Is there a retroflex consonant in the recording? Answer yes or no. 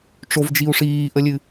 yes